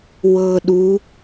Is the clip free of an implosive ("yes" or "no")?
no